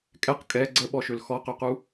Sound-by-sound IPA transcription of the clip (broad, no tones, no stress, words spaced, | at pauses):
kʼɛq kʼɛ ɡ͡ǀəɓɔʃøl xɔqøqu